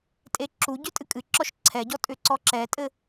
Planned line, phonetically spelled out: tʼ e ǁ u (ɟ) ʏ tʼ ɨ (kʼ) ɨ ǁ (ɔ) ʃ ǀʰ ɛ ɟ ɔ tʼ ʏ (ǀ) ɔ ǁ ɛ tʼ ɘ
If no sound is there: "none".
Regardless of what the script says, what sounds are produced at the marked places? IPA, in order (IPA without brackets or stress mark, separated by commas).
ɟ, kʼ, ɔ, ǀ